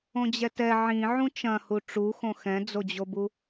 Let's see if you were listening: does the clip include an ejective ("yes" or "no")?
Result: no